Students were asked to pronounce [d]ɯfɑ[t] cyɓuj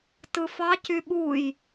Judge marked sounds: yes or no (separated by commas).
no, no